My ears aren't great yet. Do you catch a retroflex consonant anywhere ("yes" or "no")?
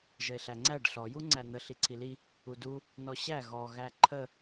yes